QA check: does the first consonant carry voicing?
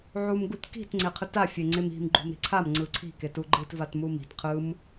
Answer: yes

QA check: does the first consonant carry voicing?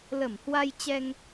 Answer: yes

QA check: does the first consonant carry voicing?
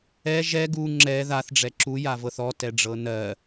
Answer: yes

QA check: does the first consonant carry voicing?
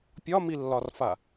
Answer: no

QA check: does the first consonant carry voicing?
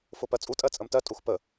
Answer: no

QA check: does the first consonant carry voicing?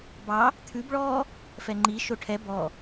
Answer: yes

